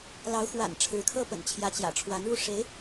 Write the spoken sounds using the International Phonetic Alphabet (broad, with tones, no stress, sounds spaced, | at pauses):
l ɑ˧˥ ʊ̯ x w a̰˨˩ n ʈ͡ʂʰ ɻ̩˧˥ kʰ ɤ˥ p ə̰˨˩ n t͡ɕʰ j ä˧˥ t͡ɕ j ä̰˨˩ ʈ͡ʂʰ w a˧˥ n ɻ u˥˩ ʂ e˧˥ ɪ̯